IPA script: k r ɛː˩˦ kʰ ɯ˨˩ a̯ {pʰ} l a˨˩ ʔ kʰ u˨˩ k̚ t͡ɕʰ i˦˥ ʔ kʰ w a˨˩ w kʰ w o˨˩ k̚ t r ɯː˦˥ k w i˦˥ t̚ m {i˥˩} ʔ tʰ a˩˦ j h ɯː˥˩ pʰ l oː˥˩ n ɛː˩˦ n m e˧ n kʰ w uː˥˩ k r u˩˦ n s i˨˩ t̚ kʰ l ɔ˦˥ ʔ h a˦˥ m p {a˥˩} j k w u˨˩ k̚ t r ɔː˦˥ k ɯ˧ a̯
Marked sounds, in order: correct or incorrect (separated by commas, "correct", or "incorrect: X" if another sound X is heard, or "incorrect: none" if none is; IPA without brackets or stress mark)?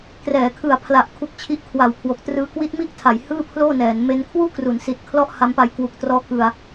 correct, correct, incorrect: a˧